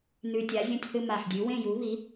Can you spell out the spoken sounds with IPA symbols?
nʉ˧tʲa˨˥zʲɐ̃˥˧tʲθɨ˥˧ ma˧˩ħdʲʉ˨˥ wẽ˥˧ju˨˥βi˨˥

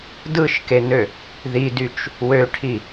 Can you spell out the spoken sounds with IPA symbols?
dɯʃkenø | ðidyt͡ʃ | wøʈʰi

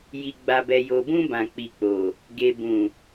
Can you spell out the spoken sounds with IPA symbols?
ji˨ɡ͡ba˨bɛ˨ jo˨bũ˧ bã˨k͡pi˨k͡po˨ | ɡe˨bũ˨

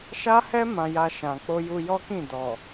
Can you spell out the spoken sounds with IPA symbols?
ʃa˦hɛ˦ mã˧ja˧ʃã˨ k͡po˧ju˧jɔ˦kĩ˦˨ dɔ˨

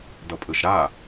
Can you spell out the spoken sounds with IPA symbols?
d̪ʌpʼɯʃɾa

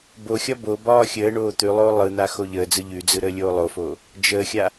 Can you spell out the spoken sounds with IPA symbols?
boxʲɒ bobɒː xʲəːɳoː t̪ʉlˠoː lˠɯn̪a xoʎəːd͡zɯ ʎʉd͡zɯ ɾəːlʲoːlˠofoː | d͡ʒəːxʲa

